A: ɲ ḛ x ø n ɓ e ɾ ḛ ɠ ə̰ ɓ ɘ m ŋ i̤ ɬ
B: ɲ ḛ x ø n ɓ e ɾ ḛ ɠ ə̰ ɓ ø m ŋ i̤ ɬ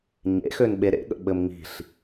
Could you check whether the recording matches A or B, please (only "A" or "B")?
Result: A